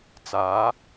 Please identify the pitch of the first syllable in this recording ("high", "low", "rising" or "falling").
rising